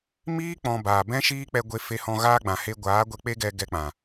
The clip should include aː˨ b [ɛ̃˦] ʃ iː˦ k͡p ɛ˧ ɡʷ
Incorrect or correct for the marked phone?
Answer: correct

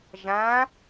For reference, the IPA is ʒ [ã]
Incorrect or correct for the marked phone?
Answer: correct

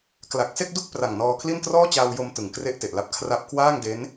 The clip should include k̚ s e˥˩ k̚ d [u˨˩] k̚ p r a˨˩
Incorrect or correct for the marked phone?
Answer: incorrect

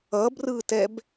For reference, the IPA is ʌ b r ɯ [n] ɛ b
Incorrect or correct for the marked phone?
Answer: incorrect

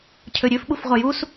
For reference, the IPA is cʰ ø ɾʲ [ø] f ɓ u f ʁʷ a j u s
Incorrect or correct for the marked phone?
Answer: correct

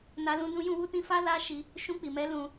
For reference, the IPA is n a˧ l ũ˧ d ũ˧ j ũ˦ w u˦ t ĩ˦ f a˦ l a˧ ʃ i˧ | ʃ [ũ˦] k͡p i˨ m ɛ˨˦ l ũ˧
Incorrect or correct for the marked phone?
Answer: incorrect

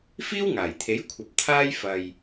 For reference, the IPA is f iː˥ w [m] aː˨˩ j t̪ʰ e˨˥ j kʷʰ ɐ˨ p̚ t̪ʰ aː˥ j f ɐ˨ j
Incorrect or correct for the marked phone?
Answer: incorrect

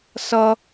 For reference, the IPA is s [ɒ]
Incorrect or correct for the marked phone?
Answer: incorrect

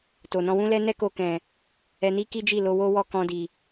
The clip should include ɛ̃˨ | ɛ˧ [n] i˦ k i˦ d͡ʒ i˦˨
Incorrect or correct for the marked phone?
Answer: correct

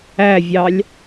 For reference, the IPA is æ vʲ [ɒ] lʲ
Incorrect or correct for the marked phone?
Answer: incorrect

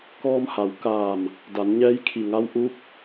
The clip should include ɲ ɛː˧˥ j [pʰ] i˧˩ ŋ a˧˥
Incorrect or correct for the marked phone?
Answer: incorrect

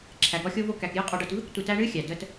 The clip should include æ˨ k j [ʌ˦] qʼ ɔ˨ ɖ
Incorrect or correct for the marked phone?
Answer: incorrect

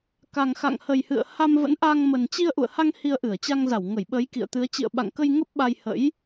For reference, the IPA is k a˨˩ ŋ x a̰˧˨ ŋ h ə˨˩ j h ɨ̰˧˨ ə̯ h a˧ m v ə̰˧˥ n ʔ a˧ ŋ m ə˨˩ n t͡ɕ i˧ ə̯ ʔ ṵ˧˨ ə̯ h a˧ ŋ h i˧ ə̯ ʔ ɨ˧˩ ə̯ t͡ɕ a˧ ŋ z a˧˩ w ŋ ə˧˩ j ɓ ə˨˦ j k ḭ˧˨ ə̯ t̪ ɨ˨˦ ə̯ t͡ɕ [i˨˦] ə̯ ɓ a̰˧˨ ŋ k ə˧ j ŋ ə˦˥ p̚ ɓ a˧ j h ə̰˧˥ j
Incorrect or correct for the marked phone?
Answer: incorrect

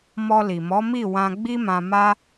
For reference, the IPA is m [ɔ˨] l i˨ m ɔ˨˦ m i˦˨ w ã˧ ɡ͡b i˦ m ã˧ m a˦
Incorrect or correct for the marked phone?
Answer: incorrect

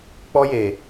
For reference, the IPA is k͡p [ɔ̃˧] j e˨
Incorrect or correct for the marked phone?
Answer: incorrect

